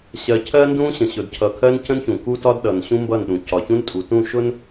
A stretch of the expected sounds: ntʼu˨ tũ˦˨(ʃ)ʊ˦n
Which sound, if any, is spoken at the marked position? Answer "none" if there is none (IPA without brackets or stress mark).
ʃ